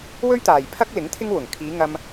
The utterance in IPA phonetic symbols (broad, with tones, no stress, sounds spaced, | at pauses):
w ɵ˥ ɥ t̪ aː˨ j pʰ ɐ˥ k̚ l ɪ˨˥ ŋ t̪ʰ ɪ˥ ŋ w ʊ˨˩ ŋ kʰ iː˨˧ ŋ ɐ˧ m